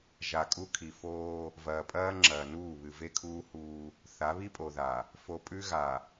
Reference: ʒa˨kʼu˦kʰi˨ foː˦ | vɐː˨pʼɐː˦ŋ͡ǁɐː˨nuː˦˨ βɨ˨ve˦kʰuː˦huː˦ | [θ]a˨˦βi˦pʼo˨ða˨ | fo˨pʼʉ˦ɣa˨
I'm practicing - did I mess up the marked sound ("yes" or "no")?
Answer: no